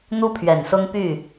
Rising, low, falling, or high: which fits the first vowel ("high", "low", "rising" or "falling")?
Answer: high